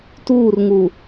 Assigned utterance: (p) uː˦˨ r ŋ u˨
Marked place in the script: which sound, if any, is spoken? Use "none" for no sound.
t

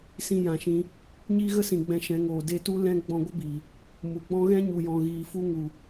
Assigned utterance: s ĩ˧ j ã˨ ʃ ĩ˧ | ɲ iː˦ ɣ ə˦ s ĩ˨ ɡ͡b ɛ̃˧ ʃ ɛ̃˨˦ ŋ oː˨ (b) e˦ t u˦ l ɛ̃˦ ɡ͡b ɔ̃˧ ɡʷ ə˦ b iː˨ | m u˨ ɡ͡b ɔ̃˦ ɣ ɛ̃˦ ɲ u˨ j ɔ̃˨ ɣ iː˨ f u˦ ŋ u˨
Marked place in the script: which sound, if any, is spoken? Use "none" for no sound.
d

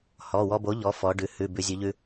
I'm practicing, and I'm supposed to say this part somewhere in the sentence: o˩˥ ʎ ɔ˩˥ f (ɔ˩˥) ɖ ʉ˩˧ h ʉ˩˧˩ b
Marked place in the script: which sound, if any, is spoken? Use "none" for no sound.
ɔ˩˧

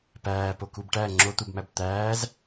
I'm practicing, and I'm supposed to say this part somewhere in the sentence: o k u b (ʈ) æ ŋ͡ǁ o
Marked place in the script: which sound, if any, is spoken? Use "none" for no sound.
ʈ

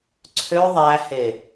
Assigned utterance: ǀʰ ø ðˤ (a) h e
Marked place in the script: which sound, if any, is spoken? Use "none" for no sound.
æ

